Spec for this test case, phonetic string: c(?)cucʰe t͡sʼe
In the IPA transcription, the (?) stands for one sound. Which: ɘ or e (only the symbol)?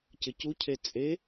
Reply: ɘ